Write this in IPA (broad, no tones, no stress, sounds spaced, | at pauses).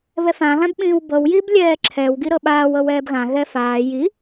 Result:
β ɛ f ã ɣ ã b ɓ ĩː w b ɤ w j i b lʲ ɛː ǁʰ ɛ w ɡ i ɾ ɤ ɓ aː w ɤ w ɛː b ɣ ã ɣ ɛ f aː j i